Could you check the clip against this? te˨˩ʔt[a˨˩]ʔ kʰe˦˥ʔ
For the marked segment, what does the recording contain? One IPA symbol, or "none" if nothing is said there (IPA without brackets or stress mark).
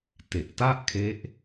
a˥˩